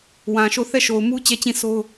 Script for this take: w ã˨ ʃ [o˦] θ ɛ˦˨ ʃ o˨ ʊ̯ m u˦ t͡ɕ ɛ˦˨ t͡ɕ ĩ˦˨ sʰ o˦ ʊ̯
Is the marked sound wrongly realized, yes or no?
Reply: yes